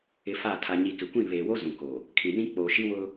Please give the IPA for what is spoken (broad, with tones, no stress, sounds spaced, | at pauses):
ɪ˨ f a˦˨ tʰ a˨ ɲ i˨ k ɪ˨ kʷ ĩ˦˨ β eː˨ w o˦ z ũ˨ k o˨ | kʰ ĩ˨ n ĩ˦ k͡p oː˨ ʃ i˦ w ʊ˦